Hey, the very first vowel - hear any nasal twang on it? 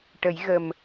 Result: no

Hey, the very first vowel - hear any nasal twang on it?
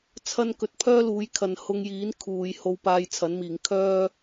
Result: no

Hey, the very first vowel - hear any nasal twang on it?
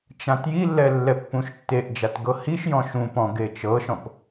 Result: yes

